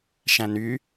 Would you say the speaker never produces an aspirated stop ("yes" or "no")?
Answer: yes